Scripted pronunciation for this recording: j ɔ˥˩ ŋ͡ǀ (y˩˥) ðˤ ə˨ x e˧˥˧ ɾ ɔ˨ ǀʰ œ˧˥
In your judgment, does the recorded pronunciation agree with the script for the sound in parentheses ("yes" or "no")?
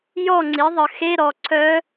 no